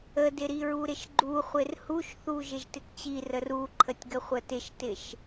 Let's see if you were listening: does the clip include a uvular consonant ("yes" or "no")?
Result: yes